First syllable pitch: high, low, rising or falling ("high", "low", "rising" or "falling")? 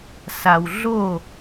low